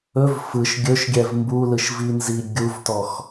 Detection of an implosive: absent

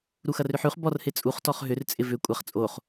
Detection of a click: absent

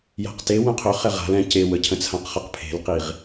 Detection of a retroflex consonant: absent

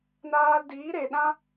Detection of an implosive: present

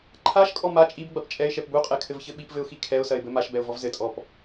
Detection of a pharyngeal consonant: absent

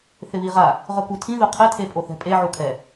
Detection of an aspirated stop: present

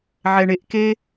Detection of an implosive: absent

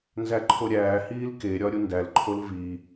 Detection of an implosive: absent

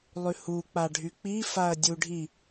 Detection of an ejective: absent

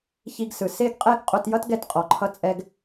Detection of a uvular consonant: present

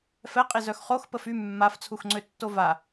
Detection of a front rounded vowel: present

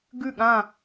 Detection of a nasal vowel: present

